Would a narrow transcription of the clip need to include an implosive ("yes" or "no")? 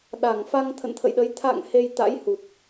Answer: yes